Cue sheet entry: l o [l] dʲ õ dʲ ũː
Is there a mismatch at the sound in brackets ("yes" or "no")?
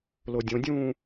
yes